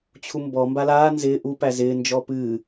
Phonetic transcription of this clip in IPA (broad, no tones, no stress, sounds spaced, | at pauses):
t͡ɕʰ u m b ɔ m b a l aː n z ɪː ʔ u p æ z ɪː n d͡ʒ ɔ p ɨː